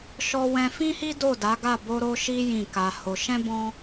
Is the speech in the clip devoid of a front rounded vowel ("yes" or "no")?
yes